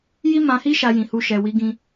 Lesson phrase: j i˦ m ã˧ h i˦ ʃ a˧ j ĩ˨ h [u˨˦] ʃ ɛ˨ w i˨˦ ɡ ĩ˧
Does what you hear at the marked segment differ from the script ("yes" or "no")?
yes